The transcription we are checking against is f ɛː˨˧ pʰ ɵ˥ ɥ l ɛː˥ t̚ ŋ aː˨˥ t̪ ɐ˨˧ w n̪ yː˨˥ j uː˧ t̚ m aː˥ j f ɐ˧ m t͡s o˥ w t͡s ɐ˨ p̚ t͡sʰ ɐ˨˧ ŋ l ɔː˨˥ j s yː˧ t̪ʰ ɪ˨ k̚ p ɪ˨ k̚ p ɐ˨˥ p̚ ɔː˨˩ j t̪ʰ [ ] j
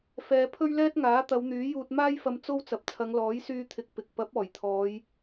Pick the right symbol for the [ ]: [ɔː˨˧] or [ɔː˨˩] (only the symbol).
ɔː˨˧